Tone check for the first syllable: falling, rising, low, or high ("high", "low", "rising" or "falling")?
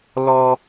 high